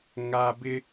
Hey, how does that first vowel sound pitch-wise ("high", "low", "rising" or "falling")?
high